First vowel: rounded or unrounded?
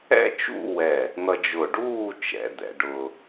unrounded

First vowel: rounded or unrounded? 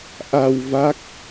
unrounded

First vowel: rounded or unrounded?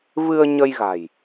unrounded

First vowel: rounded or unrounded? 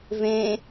unrounded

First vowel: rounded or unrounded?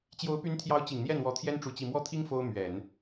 rounded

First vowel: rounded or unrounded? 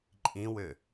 unrounded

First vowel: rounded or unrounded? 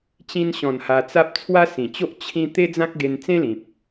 unrounded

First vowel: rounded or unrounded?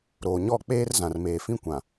rounded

